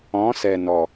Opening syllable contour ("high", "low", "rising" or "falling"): rising